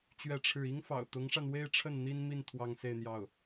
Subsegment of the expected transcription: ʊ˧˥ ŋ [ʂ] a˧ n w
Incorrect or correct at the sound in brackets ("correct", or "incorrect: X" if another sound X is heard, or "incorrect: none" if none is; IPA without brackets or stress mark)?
correct